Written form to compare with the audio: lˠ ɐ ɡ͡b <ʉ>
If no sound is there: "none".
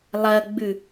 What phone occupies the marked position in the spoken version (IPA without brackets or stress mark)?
ʉ